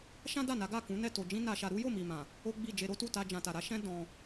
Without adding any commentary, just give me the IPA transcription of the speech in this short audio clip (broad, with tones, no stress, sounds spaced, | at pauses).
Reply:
ʃ ã˦ d a˦˨ n a˨˦ ɡ a˦˨ k ũ˨˦ n ɛ˦˨ t o˨ d͡ʒ ĩ˧ n a˧ ʃ a˧ ɾ u˦ j o˦˨ m i˨ m ã˨ | o˦ ɡ͡b i˦˨ d͡ʒ e˧ ɾ o˦ t u˦˨ t a˧ d͡ʒ ã˨ t a˨ ɾ a˨˦ ʃ ɛ̃˦ d ɔ̃˧